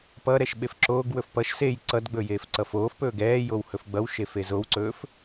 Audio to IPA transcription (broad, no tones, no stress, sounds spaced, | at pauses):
p ʌ ɾ ɛ ʃ ɓ e f ǁ oː ɡ w ɵ f p ʌ ʃ s e j ǀ ʌ d ɡ͡b ɵ j eː f ǀ ʌ f oː f p ɵː ɡ ɛː j o w h ɵ f ɡ͡b ʌ w ʃ e f e z o w ǀ ɵː f